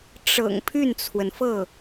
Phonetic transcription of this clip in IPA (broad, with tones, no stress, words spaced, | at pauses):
ʈ͡ʂɤ̰˨˩ŋ pʰy˥˩nt͡sʰwə˩nfɤ˥˩